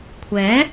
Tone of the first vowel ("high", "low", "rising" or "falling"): rising